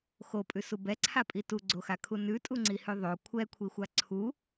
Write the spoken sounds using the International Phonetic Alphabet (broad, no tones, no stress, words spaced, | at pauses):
xopʼʉsu bɛǀʰapʼi tuɡ͡ǀoxakʰu nʉtʼuŋ͡ǀihʉ ðˤo kʷʰɛkʷʰixʷa ǀʰu